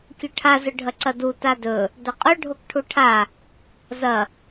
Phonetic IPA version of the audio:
kʲ ɵ ʈʰ a z ɵ ɖʱ ɐ ǀ ɐ d u t a d ɵ | d ɐ qʼ ɵ ɖʱ o k ʈʰ u ʈʰ a | z ɐ

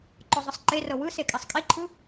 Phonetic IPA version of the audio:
ǃ ɔ zˤ ɯ sˤ ǃ e r ɤ w ɯ s e kʼ ɛ sˤ kʼ i ǃʰ ɯ

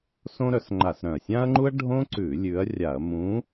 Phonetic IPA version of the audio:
s õ˥ ɾ œ˨˥ s ŋ͡ǃ a˧˩˧ s ɾ œ̃˨˩ ɐ̯ sʲ ã˥ ɐ̯ ŋ͡ǃ u˥ ɐ̯ ɖʱ õ˥ ǀ ʉ˧˩˧ lʲ ʉ˨˥ ɐ̯ rʲ a˧˩˧ ɐ̯ m ũ˨˥

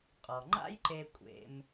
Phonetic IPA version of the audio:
qʼ ɔ˩ ŋ͡ǃ a̰˥ j ǃ e˧ kʷʼ ḛ˧ m

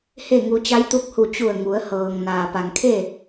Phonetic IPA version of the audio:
h e˥˨ ŋ u˧ t͡ɕ a˧˥ j t̪ u˧ k̚ h u˧˩ t͡ɕ u˧˩ ə̯ ŋ u˩˧ ə̯ h ɤː˩ ŋ n aː˩ p a˩ ŋ kʰ e˥˨

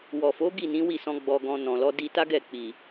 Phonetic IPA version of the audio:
w ɔ˨ f o˨˦ ɡ i˦˨ n ĩ˨˦ w i˦˨ s ɔ̃˧ ɡ͡b ɔ˧ ɡ ɔ̃˧ n ɔ̃˨ l ɔ˨˦ d i˧ t a˦ ɡ ɛ˦˨ k͡p i˨

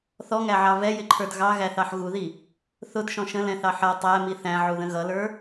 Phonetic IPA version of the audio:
θ ɔ ŋ æ ʕ ɑ v ɛ j ɪ ǃʰ ə˞ d ɣ ɑ ɣ æ θ ɑ ħ ɣ u ð i | θ ʊ d ʃ ɔ̃ ʃ ə̃ l ɛ̃ θ ɑ ħ ʌ tˤ æ m i θ æ̃ ʕ u ð ə̃ ɣ ʌ l ə˞

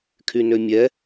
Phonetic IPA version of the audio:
kʰ y n ø mʲ ɛ

